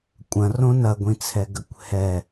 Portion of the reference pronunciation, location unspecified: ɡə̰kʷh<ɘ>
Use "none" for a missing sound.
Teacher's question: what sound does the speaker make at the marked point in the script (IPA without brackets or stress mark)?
ɛ